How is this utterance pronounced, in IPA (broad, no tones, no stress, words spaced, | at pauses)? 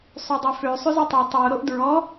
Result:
sˤydˤøfø sˤʉzitˤy tˤo ɾoʔdɹɔ